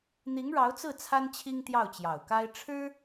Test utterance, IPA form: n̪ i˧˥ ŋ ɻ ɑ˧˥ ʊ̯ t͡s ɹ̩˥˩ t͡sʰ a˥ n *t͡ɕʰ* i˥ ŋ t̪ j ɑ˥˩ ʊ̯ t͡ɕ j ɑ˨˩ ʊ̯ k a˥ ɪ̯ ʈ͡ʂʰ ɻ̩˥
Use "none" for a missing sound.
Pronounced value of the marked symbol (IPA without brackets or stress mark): t͡ɕʰ